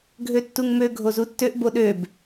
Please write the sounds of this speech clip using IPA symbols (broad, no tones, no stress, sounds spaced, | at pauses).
ɡʱ ø tː u ŋ m ø ɡʱ o z u tː ø ʔ b o ɗ ø b